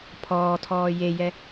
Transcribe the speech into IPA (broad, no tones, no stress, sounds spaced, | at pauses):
pʰ ɔː tʰ ɔː j e j ɛ